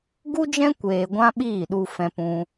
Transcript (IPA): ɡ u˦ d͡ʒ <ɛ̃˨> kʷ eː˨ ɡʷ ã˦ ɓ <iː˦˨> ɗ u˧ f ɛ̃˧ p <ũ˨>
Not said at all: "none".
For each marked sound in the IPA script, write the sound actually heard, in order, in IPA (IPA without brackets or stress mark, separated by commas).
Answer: ɛ̃˦, iː˦˨, ũ˧